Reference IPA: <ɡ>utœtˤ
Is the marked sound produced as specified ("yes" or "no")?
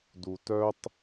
no